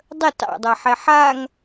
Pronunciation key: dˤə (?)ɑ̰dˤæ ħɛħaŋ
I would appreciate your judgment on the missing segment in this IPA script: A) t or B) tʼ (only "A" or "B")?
A